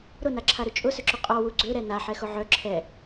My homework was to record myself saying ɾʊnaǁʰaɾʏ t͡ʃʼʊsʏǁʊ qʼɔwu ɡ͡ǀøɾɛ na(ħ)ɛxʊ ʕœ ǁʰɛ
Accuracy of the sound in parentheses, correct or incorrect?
correct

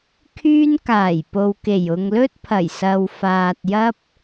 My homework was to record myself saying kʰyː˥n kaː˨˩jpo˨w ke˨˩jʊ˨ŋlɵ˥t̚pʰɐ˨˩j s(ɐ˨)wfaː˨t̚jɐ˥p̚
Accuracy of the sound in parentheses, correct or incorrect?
correct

